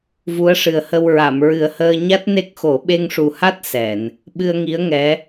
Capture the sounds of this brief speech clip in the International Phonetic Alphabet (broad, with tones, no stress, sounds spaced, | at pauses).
v u˧˥ ə̯ ʂ ɨ˨˩ ə̯ h ə˧ w ɹ a˨˩˨ m ɹ ɨ˨˩ ə̯ h əː˧ ɲ a˦˥ t̚ n e˦˥ k̚ x o˨˩˦ ɓ e˧ ŋ ʂ u˨˩ h a˦˥ t̚ s ɛ˨˩˨ n | ɓ ɨ˧ ə̯ ŋ i˧˥ ə̯ ŋ ɛ˧˥